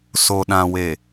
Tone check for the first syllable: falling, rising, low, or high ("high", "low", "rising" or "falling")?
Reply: low